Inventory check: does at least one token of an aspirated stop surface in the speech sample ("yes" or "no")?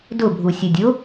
no